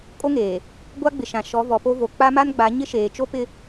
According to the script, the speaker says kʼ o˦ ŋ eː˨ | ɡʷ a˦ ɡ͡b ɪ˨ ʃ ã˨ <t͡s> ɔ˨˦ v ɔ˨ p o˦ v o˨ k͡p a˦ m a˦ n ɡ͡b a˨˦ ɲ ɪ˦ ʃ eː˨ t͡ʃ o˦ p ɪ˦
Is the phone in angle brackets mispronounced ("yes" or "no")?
yes